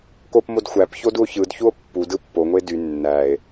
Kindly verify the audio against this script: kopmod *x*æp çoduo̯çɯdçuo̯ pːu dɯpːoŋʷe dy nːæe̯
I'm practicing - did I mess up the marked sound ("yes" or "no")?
yes